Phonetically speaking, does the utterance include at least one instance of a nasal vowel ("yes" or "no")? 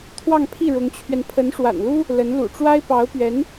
no